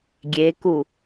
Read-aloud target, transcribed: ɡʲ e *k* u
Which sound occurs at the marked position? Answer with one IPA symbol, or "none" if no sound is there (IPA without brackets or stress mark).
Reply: k